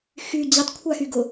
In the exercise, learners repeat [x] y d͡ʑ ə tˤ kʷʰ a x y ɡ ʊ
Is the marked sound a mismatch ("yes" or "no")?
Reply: no